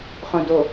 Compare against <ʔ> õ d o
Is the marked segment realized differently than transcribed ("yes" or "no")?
yes